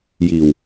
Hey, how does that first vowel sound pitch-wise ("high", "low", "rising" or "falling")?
low